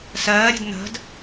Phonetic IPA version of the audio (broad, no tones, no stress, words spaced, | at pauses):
sɜːɾʲe̤d n̪ə̤d